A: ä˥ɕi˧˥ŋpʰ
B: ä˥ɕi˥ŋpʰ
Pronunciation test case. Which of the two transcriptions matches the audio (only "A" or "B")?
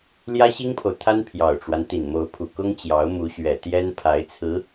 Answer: B